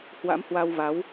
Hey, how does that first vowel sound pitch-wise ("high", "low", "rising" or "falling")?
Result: rising